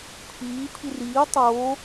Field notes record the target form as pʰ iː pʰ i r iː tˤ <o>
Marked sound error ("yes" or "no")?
yes